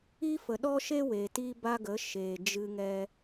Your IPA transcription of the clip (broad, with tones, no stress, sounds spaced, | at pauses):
iː˦ f ə˨ ɗ ɔ˦ ʃ e˦ w eː˨ t iː˦ b a˦ ɡ ə˨˦ ʃ eː˨ d͡ʒ ɨ˧ ŋ ɛ˧